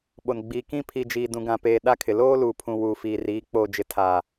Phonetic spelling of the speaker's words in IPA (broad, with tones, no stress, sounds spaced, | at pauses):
ɓ o˨ n ɡ͡b iː˨ k ĩ˦ pʰ i˨ d͡ʒ iː˨ d ũ˨ ɡ ã˨ p eː˨ ɗ a˦ kʰ ɪ˨ l oː˦ l uː˨ pʰ ũ˨ w uː˨ f iː˨ r iː˨˦ k͡p oː˨ d͡ʒ ɪ˨ tʰ aː˨